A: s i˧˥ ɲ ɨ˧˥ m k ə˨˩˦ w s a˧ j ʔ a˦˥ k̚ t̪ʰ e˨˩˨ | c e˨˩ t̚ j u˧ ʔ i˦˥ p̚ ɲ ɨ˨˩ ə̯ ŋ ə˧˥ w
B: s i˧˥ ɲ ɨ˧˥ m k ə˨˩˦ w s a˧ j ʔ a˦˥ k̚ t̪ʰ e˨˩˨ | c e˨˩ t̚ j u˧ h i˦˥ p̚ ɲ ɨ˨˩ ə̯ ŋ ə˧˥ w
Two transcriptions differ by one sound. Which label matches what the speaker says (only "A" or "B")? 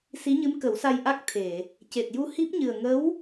B